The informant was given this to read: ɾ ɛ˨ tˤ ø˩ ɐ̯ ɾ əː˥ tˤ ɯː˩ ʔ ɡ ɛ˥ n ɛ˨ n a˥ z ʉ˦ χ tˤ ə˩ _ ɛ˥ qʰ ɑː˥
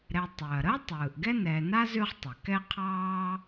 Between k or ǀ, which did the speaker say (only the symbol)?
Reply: k